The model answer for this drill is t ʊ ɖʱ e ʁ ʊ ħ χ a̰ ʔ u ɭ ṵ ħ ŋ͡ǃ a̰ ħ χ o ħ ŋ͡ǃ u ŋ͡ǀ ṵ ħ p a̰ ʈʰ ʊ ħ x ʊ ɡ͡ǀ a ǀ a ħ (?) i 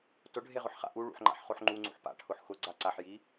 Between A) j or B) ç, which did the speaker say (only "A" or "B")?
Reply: A